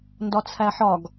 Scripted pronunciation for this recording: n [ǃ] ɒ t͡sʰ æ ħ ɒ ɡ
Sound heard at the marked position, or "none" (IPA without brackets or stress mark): d